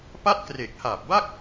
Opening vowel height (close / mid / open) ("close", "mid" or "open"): open